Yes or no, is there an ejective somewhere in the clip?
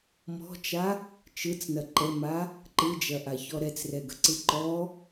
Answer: no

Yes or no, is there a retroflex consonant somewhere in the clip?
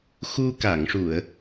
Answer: yes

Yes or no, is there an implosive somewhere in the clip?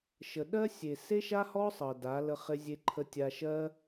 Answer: yes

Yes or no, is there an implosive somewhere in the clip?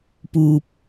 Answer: no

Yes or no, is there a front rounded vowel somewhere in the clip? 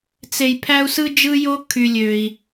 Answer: yes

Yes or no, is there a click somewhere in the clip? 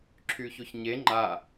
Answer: yes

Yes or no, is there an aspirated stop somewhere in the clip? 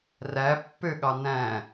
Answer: no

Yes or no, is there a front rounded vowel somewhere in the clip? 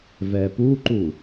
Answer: no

